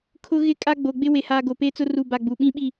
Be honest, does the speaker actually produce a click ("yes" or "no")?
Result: no